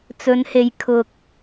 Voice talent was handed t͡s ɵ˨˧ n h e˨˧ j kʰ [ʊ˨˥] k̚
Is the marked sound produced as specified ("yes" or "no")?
no